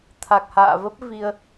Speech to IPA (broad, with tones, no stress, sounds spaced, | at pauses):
t̪ʰ a˨˩ k̚ h a̰ː˧˨ v ə˦˥ p̚ v i˧ ə̯